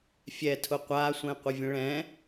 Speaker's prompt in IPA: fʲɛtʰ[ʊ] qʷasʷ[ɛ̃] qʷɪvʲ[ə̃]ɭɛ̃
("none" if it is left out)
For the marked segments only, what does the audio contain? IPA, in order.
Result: ʊ, ɛ̃, ə̃

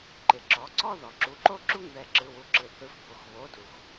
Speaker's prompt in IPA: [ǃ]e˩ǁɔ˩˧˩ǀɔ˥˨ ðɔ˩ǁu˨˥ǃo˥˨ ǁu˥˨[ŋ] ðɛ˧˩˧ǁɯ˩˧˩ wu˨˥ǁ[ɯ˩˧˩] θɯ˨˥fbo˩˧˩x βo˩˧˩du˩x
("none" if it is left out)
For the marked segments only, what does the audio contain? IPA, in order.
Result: ǃ, ŋ, ɯ˩

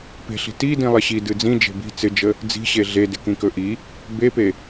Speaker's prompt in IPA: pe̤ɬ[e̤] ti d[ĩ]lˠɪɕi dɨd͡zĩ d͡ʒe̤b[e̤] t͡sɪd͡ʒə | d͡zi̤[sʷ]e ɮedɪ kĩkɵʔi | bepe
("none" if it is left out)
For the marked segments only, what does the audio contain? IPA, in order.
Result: i̤, ĩ, i̤, ɕ

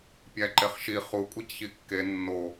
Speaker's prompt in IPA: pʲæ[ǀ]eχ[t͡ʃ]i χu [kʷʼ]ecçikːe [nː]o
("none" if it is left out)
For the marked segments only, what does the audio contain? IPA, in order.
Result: ǃ, ʃ, kʷʼ, nː

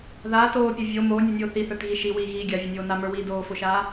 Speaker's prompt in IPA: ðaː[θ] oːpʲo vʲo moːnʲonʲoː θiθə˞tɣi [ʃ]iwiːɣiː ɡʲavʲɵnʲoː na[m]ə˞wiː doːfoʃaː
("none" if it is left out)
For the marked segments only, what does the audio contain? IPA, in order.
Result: t, ʃ, m

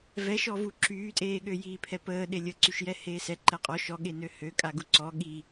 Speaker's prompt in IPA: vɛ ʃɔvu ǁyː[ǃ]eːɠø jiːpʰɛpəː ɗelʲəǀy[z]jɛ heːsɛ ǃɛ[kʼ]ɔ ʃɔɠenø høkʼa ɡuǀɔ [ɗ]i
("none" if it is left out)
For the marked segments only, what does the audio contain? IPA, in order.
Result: tʼ, ʃ, qʼ, ɠ

